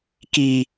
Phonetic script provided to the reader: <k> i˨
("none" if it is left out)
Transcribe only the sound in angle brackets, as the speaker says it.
k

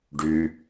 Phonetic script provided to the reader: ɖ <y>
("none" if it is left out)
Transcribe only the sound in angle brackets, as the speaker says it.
y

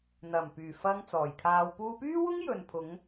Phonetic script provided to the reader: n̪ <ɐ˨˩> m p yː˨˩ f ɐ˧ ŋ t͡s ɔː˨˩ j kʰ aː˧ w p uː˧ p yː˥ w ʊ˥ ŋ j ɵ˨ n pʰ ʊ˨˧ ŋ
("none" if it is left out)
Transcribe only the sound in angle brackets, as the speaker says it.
ɐ˨˩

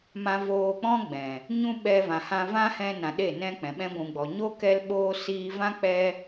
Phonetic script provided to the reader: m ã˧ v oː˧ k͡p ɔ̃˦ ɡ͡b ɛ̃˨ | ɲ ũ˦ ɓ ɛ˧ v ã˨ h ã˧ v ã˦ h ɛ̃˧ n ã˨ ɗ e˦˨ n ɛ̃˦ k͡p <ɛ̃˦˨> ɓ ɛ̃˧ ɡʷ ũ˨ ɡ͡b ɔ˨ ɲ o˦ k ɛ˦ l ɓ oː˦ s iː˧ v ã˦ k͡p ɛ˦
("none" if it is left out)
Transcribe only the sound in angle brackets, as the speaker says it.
ɛ̃˨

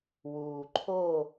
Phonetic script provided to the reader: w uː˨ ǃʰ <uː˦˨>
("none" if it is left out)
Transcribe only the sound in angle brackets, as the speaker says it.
oː˦˨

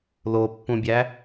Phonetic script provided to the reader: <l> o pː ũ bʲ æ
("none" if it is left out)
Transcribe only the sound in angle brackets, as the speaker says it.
l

